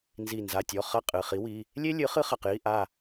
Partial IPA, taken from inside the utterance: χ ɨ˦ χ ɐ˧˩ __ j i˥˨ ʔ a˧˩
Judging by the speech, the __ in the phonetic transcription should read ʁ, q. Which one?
q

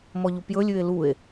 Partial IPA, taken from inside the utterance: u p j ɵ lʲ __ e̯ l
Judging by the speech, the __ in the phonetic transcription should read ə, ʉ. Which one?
ʉ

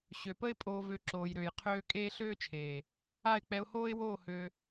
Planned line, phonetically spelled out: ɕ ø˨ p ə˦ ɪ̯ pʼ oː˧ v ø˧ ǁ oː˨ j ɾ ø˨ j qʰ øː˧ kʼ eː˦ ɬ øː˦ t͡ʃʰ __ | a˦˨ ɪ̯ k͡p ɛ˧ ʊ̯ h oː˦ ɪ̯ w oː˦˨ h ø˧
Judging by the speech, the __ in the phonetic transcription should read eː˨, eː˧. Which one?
eː˨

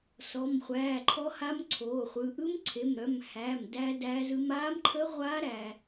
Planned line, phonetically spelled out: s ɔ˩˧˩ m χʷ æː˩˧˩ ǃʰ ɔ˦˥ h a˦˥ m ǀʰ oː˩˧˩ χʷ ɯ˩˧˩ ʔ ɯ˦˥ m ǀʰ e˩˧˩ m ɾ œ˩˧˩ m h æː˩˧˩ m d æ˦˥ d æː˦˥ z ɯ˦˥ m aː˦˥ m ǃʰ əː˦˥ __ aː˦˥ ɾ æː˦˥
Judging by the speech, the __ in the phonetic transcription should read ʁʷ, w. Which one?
ʁʷ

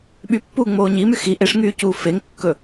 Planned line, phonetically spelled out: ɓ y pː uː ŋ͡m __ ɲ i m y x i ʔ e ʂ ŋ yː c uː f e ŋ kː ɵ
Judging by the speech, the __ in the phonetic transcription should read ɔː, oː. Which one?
oː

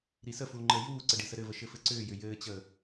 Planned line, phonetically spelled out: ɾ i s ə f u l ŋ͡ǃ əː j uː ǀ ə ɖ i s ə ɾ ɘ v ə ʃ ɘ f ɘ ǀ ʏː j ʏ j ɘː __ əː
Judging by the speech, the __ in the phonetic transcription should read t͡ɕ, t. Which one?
t͡ɕ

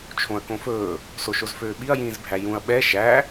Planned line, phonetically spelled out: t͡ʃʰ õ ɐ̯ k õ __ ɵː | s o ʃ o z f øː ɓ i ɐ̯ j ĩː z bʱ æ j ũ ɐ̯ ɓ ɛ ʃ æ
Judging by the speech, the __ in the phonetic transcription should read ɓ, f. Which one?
f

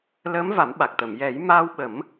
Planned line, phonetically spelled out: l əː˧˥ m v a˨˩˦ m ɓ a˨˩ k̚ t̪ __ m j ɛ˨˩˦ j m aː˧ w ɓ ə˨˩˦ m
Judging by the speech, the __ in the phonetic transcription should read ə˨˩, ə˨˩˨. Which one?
ə˨˩˨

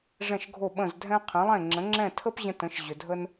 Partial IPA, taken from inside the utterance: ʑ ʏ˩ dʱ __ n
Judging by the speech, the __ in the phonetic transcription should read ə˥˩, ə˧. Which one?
ə˧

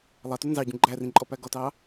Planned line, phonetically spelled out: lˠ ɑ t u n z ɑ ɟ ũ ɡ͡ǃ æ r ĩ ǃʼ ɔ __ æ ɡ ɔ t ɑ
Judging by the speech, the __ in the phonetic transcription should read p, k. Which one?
p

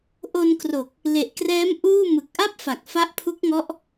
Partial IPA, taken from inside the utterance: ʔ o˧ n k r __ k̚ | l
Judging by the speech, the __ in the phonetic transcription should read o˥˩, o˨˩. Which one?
o˨˩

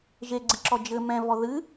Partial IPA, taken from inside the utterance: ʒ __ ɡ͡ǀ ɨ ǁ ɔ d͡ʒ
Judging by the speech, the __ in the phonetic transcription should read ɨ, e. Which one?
e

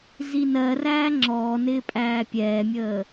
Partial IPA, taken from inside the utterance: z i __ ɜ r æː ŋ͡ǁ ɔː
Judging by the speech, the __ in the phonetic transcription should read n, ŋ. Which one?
n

